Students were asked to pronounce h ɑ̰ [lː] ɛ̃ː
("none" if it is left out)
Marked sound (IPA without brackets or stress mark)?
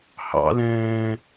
l